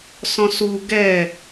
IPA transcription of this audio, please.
s ɔ̃ s u ɡ ɛ

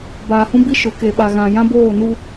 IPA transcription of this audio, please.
b aː˨ h ũ˦ b i˦ ʃ ʊ˨˦ k e˨ ɓ a˨ ɣ ã˨ j ã˦ b oː˦˨ n u˦

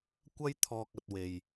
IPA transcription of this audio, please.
kʷ ɐ˥ j t̪ʰ ɔː˧ k̚ ɐ˧ t̚ w e˨ j

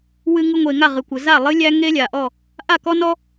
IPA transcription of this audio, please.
w ɨ˧ ŋ ɨ˧ ŋʷ eː˩ ŋ a˥˩ ʁ ɨ˩ kʷ ə˩ z a˥˩ lˠ ɨ˥ lʲ æ˥ ŋ e˥ lʲ a˩ ʔ ɔ˥˩ | ʔ a˥˩ k ɔ˥ n ɔ˥

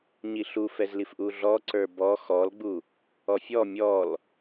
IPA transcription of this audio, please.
ɲ i ɬ u f ɛ z l i f ʔ u ɮ ɔ ǀ ə˞ b ɔ x ɔ l ɡ͡b u | ɔ fʲ ɔ mʲ ɔ l

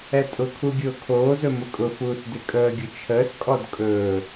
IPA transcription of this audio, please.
ɛ tʼ ʊ kʰ u ɡʲ ʊː kʰ oː z ɵ m ʊ kʼ ʊ f uː s d ɪ kʼ əː ɡʲ ʊ t͡ʃʰ əː s kʼ ɔ d kʼ ɵː

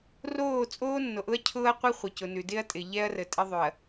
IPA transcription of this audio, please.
r oː˦˨ t͡sʼ oː˦ nː o˨ ʔ ʊ˦ ɐ̯ cʰ ʊː˦ ɐ̯ qʷ ɪ˦ χʷ ɪ˨ c ʊ˨ n ʉ˨ d ɪ˦ ɐ̯ tʼ ɪ˨ ʎ ɛ˦ ɐ̯ r ə˨ tʼ ɪ˦ ðˤ ʉ˨ ɐ̯

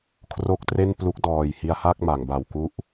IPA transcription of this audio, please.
kʰ r o˦˥ k̚ t r e˥˩ n p l u˦˥ k̚ d ɔː˨˩ j h i˧ a̯ h a˥˩ k̚ m a˩˦ ŋ b a˨˩ w k u˥˩ ʔ

